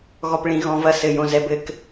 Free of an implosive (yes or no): yes